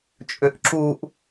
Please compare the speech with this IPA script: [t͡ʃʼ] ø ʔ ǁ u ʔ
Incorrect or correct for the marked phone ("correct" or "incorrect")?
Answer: correct